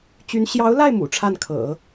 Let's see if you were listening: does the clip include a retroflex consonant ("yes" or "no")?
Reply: yes